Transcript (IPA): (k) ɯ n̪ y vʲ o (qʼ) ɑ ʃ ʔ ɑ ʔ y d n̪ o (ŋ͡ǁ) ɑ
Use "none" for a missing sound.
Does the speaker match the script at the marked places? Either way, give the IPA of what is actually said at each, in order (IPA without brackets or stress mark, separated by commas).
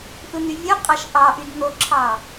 ʔ, qʼ, ǁʰ